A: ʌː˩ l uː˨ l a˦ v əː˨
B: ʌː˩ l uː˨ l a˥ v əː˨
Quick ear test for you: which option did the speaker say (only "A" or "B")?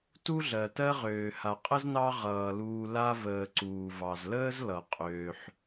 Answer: B